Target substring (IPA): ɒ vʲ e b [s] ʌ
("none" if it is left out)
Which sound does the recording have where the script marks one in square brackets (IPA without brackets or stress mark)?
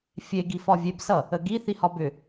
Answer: s